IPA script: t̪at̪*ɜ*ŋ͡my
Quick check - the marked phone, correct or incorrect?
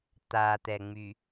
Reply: incorrect